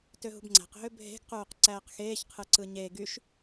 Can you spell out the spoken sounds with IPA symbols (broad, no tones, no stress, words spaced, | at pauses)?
tøɦṳbŋ͡ǀæ̤q ɦøbʱe̤ɡ quːqǀæːqxeːç qʰɯǀɯɲe ɡyʃ